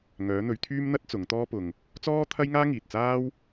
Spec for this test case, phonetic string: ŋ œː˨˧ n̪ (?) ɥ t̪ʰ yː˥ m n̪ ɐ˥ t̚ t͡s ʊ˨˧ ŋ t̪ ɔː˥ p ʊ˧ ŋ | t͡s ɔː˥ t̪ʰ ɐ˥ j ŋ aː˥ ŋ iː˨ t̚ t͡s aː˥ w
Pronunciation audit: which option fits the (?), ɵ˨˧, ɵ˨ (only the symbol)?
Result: ɵ˨˧